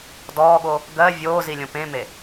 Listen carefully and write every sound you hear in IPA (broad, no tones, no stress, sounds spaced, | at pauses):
d ɔː ɠ o | ɡ ɜ vʲ oː z i lʲ õ p ẽ m e